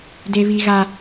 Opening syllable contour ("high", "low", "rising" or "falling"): high